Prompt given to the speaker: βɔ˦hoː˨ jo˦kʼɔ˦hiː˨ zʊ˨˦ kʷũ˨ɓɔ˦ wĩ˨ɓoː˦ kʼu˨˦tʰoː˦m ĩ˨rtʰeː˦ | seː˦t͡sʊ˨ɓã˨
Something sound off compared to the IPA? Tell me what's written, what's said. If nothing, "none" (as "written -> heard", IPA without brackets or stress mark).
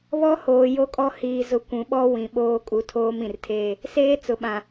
none